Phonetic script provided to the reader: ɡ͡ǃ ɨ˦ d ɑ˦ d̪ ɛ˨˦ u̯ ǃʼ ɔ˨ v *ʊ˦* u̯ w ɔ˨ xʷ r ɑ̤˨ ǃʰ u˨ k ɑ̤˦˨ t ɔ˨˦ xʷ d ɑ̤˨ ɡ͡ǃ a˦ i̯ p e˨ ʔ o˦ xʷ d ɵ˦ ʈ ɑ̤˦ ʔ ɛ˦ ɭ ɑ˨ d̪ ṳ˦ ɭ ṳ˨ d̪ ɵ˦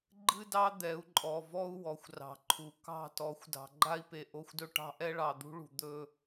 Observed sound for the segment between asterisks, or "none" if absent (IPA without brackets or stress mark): ɔ˦